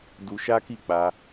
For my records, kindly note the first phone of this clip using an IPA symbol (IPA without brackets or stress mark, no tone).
d